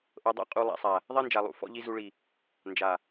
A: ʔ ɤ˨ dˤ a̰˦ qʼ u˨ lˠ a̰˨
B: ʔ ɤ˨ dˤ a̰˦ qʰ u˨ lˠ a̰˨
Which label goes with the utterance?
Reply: A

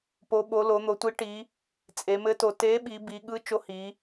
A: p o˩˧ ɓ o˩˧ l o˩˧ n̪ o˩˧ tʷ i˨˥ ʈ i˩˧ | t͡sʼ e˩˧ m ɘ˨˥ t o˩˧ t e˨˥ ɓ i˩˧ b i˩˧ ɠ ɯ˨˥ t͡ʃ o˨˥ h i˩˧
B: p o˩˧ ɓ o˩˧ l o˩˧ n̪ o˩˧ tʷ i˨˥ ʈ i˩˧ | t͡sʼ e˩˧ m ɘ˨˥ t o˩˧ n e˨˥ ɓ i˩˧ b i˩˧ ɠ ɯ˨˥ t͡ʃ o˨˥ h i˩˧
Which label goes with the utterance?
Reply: A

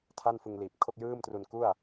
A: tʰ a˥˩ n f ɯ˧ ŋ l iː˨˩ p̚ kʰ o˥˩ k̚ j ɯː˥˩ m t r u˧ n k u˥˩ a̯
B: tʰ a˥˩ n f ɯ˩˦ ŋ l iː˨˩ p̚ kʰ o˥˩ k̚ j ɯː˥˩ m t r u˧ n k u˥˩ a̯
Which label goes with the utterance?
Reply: A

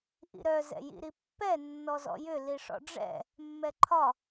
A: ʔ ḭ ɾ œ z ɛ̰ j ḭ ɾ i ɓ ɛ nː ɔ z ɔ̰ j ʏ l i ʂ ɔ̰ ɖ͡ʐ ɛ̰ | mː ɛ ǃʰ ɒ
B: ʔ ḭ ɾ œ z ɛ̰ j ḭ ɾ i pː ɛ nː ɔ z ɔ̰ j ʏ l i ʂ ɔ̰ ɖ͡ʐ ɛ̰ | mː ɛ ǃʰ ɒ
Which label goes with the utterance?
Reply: B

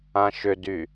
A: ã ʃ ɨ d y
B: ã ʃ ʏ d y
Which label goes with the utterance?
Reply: B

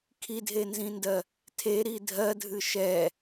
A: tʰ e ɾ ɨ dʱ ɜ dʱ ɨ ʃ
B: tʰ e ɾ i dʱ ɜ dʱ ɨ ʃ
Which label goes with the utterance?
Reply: B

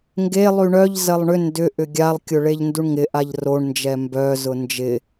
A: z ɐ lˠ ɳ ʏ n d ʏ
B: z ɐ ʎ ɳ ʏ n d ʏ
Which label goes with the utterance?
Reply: A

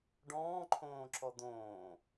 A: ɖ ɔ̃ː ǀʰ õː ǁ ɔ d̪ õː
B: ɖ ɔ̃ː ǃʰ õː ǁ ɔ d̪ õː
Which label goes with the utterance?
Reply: B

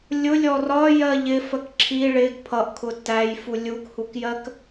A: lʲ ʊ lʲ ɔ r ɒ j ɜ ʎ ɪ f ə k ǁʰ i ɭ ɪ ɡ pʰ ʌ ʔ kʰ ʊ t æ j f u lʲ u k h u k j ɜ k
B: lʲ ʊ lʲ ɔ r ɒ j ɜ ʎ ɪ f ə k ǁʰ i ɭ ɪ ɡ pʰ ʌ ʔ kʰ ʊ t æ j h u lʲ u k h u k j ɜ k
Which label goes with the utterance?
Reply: A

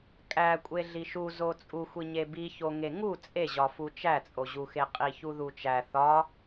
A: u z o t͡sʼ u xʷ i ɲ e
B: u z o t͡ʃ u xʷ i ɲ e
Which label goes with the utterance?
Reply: A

